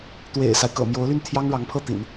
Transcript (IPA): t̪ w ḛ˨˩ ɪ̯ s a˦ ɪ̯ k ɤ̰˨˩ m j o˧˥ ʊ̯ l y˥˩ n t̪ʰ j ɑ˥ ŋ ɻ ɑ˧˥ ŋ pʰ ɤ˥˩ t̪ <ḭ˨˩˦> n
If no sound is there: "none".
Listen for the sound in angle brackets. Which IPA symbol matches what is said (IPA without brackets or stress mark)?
ḭ˨˩˦